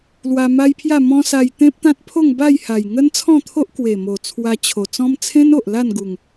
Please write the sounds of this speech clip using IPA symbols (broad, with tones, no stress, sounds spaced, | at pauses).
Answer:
l w a˧ m a˦ j pʰ j a˥˧ m ɔ̃˦ s a˧ j t̪ ẽ˦ p̚ t̪ ã˦ t̚ pʰ o˥˧ ŋ b a˥˧ j h a˨˩ j ŋ ə˦ n t͡sʰ ɔ̃˥˧ t̪ʰ o˦ ʔ k w e˨˩ m o˨˩ t͡sʰ w a˧ t͡ɕʰ o˨˩ t͡s ɔ̃˦ m t͡sʰ ẽ˦ n o˨ ʔ l a˥˧ n ɡ u˨˩ ŋ